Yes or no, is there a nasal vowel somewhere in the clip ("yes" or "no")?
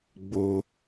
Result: no